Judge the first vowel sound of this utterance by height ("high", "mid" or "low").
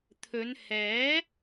mid